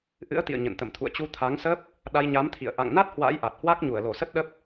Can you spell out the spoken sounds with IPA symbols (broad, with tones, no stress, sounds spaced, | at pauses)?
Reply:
ʔ ɨ̰˧˥ ə̯ t̪ ḭ˧˨ ə̯ ɲ ə̰˧˨ n t̪ ə̰˧˨ m t̪ʰ ṵ˧˨ ə̯ t͡ɕ u˧ t̪ʰ a˨˦ ŋ s ə˦˥ p̚ | ɗ a˧ j ɲ a˨˦ m t̪ʰ ḭ˧˨ ə̯ ʔ a̰˧˨ ŋ n a˦˥ t̚ h w a̰˧˥ j ʔ a˨˩ t̚ h w a˦˥ k̚ ɲ u˧˩ ə̯ l o˧˩ s ə˦˥ t̚ ɗ ə˦˥ p̚